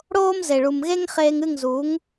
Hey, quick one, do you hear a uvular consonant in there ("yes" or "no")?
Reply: yes